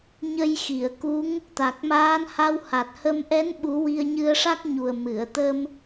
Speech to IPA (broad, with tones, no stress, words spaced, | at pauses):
ɲə˧jxi˨˩˨ə̯ku˧˥ŋ | t̪a˨˩k̚maː˧˥n ha˧wha˨˩t̚hə˧m ʔɛ˧˥n ɓu˧˥ wi˧ə̯ɲɨ˧ə̯ʂa˦˥k̚ɲu˨˩ə̯ mɨ˨˩˨ə̯t̪ə˧m